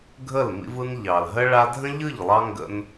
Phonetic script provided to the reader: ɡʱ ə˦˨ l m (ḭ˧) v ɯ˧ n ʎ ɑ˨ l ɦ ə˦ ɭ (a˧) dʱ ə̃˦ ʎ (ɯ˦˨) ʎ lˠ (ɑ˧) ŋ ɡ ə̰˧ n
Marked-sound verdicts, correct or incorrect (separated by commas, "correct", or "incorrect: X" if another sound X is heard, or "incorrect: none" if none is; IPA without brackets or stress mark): correct, correct, correct, correct